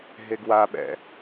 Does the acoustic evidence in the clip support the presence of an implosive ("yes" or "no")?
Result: yes